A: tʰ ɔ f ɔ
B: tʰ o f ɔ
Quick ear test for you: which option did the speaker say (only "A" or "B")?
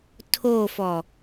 B